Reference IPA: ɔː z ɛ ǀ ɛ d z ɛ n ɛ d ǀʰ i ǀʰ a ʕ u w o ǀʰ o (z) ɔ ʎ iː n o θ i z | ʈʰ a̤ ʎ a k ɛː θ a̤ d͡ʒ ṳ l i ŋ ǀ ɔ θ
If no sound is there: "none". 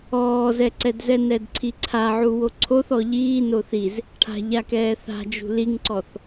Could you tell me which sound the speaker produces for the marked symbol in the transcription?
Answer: θ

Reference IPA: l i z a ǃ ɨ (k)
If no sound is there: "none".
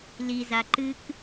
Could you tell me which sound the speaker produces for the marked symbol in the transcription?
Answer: k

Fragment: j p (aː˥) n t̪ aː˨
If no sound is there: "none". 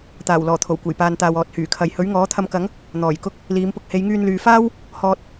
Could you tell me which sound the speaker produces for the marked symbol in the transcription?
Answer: aː˨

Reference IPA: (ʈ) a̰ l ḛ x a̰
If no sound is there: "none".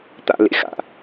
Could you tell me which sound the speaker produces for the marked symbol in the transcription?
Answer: t̪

